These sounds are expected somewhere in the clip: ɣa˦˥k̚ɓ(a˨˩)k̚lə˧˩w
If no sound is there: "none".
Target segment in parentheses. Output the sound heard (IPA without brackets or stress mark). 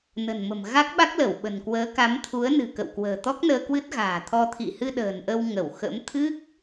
a˦˥